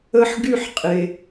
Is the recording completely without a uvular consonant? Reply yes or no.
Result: no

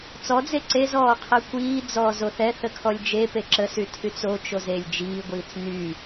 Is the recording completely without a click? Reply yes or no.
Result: no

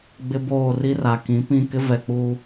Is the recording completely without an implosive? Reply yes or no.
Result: yes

